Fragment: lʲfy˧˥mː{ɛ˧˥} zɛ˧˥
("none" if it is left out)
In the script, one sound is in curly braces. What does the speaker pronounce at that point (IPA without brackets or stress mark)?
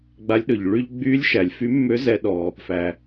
ø˧˥